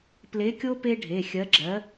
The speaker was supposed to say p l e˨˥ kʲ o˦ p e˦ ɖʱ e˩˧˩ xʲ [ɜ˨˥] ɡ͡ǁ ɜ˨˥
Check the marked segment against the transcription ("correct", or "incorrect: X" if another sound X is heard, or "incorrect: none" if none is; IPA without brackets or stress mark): correct